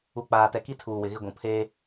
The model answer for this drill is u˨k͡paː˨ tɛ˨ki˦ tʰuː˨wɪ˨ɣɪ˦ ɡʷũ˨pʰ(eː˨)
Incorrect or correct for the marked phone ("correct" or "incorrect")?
incorrect